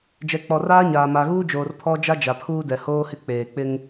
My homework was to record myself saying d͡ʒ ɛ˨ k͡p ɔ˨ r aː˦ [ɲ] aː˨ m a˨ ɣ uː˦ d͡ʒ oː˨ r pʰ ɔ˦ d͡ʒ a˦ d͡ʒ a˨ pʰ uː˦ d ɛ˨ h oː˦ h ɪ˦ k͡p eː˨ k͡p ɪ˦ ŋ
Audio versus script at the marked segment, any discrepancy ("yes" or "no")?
no